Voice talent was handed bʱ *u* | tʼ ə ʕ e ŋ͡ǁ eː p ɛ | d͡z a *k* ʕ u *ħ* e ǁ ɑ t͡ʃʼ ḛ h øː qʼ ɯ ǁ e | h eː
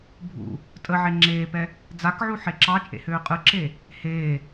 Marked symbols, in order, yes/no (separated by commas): no, yes, yes